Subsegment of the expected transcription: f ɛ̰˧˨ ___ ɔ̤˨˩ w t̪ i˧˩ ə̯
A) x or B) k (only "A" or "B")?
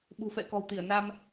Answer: B